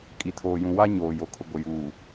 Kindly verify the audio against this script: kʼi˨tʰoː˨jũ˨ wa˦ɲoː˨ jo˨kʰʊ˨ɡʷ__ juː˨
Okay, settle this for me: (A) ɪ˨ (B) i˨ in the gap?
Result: A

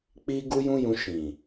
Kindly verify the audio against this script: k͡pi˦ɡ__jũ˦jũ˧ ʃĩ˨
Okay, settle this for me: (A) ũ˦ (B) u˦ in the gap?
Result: B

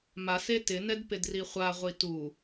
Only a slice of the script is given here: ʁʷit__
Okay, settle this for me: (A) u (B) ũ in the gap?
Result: A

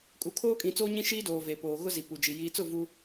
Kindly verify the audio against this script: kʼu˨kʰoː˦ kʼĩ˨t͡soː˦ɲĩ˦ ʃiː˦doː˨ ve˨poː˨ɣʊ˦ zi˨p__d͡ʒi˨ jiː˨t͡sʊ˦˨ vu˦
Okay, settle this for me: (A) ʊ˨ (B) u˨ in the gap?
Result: B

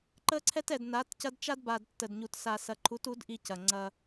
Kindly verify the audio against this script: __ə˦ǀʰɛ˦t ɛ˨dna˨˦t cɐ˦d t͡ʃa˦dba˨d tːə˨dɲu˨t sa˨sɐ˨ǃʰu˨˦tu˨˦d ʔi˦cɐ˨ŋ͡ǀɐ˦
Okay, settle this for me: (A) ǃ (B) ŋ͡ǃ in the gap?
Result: A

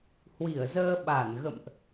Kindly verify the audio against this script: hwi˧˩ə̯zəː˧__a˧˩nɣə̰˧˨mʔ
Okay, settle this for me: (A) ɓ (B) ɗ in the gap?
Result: A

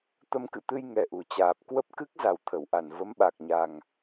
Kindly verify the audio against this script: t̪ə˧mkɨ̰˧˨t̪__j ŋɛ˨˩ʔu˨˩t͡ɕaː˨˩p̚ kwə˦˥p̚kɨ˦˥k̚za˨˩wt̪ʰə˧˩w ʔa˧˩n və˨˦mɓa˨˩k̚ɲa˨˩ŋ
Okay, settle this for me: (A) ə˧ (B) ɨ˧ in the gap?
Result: B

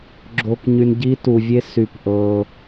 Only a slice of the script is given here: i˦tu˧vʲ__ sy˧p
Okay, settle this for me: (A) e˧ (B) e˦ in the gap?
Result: B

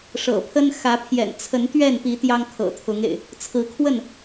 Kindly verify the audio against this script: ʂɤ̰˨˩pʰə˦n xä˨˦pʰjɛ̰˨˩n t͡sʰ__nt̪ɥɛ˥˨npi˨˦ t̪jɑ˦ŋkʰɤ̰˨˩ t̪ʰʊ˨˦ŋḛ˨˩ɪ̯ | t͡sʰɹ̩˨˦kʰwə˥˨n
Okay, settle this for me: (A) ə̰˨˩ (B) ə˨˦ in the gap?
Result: B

